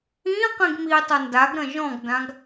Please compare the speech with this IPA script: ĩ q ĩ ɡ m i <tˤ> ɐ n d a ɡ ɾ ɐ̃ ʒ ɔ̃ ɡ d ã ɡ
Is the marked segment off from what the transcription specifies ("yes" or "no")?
no